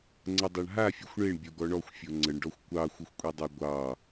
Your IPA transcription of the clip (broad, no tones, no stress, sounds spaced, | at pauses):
ŋ͡ǀ ə dˤ ɑ ɳ ɦ a fʲ ɔ xʷ ɳ e ɳ bʲ o ɡ ɔ ɳ ɔ xʷ fʲ o ŋ͡ǀ ə ɳ ɖ ɔ xʷ kʷ ɑ xʷ ə xʷ kʷʼ e dˤ a ɡʷ ɑ